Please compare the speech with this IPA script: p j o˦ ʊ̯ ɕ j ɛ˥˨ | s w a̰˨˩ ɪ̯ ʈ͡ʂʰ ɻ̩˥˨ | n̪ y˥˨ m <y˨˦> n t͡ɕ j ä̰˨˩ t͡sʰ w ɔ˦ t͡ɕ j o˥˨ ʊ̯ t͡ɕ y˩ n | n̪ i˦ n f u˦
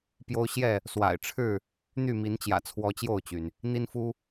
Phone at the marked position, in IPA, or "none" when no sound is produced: i˨˦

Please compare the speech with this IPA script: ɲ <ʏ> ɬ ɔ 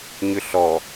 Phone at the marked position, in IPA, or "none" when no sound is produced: ʏ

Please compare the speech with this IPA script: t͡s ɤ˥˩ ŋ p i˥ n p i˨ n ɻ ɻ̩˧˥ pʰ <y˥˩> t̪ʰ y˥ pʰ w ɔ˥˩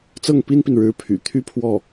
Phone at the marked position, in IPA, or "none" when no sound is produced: y̰˨˩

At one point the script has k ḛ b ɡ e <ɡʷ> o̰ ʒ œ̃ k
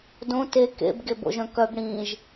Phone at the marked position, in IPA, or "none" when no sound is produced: b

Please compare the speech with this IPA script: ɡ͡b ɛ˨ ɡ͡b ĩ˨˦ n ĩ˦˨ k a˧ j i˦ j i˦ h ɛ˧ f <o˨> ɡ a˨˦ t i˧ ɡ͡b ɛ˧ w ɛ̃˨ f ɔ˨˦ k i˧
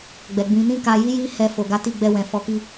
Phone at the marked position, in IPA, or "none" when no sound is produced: o˨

